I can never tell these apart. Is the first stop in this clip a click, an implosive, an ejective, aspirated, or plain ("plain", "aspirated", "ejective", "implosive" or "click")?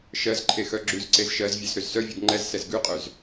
click